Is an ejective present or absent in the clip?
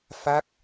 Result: absent